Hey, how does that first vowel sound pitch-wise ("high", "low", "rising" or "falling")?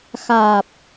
low